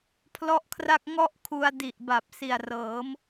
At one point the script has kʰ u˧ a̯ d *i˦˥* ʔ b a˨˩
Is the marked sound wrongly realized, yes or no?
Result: yes